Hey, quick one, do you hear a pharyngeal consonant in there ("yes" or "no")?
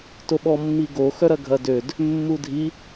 no